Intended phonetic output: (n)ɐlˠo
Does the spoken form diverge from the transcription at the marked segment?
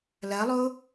yes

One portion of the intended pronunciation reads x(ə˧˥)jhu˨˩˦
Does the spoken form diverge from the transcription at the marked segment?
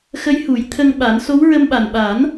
no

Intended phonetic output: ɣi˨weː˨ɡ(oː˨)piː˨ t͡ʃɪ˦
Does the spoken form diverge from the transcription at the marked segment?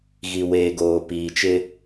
no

